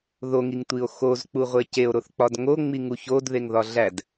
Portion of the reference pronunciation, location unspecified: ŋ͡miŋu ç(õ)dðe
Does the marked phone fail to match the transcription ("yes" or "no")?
yes